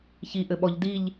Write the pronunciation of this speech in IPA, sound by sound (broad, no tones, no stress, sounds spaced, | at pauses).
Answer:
ç i ʔ ɘ ɓ ɔ ʎ d i ʎ